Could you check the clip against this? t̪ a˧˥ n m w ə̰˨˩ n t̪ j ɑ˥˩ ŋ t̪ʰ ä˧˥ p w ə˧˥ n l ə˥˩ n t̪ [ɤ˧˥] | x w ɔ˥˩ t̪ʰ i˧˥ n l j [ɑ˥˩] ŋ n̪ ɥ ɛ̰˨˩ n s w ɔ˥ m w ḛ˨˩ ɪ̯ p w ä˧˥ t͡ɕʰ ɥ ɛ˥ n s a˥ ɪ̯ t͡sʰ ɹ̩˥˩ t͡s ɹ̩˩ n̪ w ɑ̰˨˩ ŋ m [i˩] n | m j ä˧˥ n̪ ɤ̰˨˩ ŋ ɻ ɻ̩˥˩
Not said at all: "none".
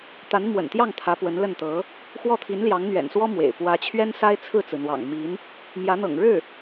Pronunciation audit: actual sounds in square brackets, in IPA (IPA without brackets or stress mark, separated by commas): ɤ˧˥, ɑ˧˥, i˧˥